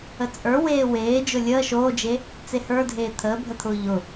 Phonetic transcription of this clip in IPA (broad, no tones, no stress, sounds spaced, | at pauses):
ə t͡sʼ ə˞ w eː w eː d͡ʒ ʊ lʲ əː ʃ oː d͡ʒ e | t͡s e h ə˞ dʱ eː t̪ʰ əː bʱ ə t̪ʰ ʊː ʎ ʊ